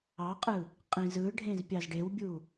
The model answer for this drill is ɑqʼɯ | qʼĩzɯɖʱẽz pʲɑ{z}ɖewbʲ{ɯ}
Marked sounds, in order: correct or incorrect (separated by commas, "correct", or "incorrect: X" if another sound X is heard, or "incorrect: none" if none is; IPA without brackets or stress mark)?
correct, incorrect: u